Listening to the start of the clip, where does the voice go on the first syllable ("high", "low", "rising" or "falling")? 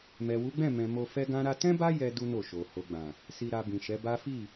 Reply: low